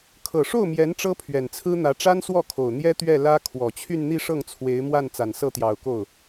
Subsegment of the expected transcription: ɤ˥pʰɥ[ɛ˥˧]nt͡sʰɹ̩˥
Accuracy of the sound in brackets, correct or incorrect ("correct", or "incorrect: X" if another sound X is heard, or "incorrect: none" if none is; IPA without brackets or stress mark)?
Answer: incorrect: ɛ˨˩